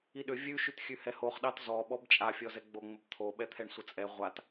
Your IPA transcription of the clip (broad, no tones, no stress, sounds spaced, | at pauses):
i ɗ ʏ vʲ ʉ ʃ ʉ t xʲ ʉ h ɛ h o χ ɗ ɑ t z ɔ ɓ ɔ b t͡ʃʼ a fʲ ɔ z ɛ ɡ͡b o ŋ͡m ə b t̪ʰ o ɓ ɛ t̪ʰ ɛ ɳ sʷ ə t͡sʼ ɛ ʁʷ a t